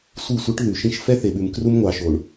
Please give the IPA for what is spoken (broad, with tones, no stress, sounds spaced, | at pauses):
sʷ i˦˨ sʷ i˦ ʈ ð ʉ˨ ʃ ĩ˦ ʃ f ɛ˦ θ e˨ ɓ ʉ˨ m k r u˦ m ŋʷ ɑ˨ ʃ o˨ ɳ